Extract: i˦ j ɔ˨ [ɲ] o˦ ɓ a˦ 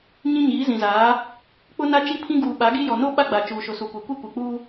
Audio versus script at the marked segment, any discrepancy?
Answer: yes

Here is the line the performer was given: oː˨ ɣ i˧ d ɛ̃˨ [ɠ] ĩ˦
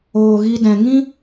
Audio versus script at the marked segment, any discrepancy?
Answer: yes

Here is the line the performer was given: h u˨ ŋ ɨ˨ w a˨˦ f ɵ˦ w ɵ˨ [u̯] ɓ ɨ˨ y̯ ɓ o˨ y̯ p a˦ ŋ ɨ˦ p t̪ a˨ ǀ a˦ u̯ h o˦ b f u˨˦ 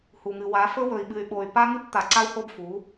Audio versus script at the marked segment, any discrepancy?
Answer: yes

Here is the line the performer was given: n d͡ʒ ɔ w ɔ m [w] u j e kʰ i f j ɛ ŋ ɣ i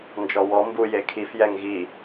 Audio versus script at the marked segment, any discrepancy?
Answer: yes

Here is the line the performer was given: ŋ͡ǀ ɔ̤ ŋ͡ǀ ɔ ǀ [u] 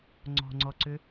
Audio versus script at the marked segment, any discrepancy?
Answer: yes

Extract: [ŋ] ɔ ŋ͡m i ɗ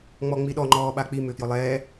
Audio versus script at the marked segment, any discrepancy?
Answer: yes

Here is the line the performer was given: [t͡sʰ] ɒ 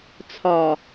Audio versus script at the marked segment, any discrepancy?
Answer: no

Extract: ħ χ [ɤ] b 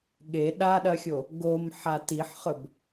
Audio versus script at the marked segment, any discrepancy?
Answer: yes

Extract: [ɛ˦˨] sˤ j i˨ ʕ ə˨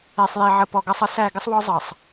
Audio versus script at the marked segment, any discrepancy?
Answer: yes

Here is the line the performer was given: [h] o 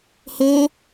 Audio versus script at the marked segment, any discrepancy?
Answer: no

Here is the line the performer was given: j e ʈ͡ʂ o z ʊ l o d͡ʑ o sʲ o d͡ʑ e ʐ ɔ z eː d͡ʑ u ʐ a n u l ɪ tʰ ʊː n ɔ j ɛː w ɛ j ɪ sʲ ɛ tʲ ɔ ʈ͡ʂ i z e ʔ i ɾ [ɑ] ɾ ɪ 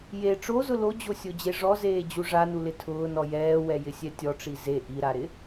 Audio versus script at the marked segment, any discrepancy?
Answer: yes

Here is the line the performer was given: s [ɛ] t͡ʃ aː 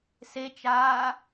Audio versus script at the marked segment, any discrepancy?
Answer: yes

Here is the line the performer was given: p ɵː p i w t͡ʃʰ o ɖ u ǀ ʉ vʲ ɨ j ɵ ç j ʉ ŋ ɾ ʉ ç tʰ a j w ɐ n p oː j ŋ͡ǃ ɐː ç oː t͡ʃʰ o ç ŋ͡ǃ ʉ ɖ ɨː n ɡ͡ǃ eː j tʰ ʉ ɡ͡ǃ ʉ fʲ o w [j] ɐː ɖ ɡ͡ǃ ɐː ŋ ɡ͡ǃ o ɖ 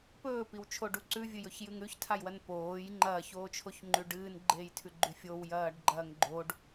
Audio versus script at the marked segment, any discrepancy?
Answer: no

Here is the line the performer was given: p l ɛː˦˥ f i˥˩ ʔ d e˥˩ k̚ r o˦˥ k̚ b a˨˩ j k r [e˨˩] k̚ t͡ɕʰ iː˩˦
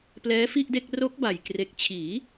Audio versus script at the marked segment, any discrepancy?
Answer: no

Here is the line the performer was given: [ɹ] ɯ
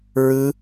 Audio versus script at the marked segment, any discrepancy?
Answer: no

